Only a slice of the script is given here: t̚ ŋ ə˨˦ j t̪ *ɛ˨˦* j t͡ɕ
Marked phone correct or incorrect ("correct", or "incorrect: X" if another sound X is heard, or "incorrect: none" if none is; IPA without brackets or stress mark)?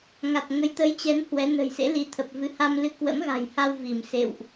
incorrect: ə˨˦